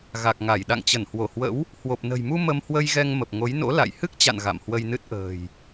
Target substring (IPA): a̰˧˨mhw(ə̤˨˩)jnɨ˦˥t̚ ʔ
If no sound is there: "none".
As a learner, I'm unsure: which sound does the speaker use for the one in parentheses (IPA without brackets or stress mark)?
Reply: ə˧